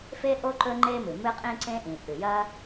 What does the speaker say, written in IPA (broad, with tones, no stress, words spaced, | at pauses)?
fe˥ʔo˥ ǃɵ˥ŋ͡ǃe˥mɨ˩ mɨ˥qʼĩ˥ǀẽ˥ʔĩ˩ ʔʉ˩jɐ˥